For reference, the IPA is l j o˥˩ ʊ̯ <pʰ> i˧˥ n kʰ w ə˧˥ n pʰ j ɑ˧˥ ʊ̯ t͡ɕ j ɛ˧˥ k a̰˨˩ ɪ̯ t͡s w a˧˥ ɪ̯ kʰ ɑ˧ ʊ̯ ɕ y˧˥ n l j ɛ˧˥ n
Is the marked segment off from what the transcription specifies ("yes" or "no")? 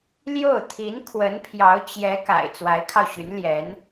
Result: yes